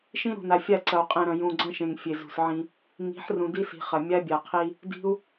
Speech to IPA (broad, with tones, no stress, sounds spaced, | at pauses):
ʃ ĩ˦ ɾ ṳ˨ n a˨ fʲ a˦˨ ǀ ɐ˨ u̯ qʼ ẽ˨ ɾ ɐ̃˨ j ũ˨ ɡ͡ǀ ɐ̃˦ ʃ ẽ˨ ŋ fʲ e˨ z ṳ˨ s ʕ ĩ˦ | ŋ i̤˨˦ ħ r ũ˨ d i˦ s i̤˨ χ ɐ˨ mʲ a˦ bʲ a˨ qʰ i˦ | d i̤˦ u̯